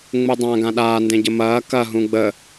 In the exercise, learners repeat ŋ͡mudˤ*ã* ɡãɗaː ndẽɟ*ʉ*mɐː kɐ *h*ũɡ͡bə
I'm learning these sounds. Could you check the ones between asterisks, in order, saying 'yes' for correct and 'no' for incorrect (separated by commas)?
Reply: yes, no, no